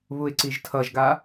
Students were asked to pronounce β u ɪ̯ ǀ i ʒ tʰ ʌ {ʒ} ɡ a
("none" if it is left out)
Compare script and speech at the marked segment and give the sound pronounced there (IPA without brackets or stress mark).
ʒ